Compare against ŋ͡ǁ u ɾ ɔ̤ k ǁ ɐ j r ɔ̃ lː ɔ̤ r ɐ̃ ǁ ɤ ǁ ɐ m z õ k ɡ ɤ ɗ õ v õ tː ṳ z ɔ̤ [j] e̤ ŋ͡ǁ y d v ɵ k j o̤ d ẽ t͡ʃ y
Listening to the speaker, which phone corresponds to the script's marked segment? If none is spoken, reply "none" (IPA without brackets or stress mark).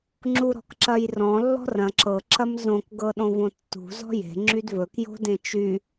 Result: j